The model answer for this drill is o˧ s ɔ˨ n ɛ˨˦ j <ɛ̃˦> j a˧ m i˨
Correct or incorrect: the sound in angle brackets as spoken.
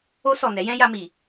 correct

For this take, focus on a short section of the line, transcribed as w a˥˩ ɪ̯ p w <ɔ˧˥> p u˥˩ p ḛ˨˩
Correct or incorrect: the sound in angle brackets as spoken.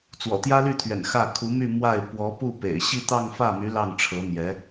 correct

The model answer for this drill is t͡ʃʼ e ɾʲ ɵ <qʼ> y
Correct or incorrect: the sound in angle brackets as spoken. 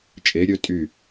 incorrect: tʼ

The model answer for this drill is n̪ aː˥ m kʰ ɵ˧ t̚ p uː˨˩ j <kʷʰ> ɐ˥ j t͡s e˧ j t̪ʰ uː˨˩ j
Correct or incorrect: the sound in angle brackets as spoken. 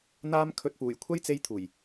correct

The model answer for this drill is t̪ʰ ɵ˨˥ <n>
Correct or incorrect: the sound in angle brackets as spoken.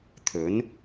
correct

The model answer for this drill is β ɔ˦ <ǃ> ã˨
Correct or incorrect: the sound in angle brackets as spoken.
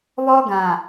incorrect: ɡ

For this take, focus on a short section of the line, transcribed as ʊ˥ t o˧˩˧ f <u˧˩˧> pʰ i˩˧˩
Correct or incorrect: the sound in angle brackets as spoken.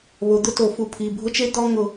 incorrect: u˨˦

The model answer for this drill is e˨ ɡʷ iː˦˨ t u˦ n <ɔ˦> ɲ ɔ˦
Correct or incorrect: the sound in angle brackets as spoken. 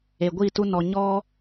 incorrect: ɔ˧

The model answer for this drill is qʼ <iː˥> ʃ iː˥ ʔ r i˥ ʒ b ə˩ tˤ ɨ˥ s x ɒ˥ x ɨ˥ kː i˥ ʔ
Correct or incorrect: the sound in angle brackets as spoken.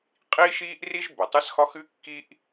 correct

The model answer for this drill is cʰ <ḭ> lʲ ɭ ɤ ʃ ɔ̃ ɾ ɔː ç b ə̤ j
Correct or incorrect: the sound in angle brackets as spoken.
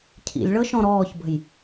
correct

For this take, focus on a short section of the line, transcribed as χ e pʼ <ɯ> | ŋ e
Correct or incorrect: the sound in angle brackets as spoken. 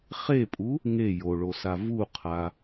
incorrect: u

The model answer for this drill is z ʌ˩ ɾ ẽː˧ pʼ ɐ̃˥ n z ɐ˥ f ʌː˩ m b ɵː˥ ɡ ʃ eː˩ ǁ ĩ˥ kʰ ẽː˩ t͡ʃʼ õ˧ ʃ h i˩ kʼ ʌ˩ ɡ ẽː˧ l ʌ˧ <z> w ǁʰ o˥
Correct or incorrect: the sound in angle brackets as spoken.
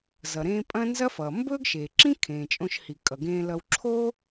incorrect: none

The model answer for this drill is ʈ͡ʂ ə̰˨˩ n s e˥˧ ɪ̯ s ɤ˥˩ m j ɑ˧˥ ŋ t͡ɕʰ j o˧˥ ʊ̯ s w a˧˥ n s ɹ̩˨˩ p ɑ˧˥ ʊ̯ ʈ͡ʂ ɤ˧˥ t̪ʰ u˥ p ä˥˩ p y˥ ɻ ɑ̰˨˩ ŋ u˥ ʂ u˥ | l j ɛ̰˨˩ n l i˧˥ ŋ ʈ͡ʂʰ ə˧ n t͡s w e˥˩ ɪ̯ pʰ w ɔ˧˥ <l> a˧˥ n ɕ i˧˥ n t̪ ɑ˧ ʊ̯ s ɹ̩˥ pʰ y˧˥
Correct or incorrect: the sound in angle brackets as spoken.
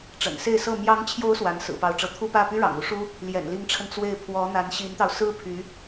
incorrect: n̪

